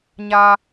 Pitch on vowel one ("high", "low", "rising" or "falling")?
high